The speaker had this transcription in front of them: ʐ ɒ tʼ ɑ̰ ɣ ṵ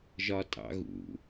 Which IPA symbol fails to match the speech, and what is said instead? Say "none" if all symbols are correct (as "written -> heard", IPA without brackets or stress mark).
ʐ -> ʒ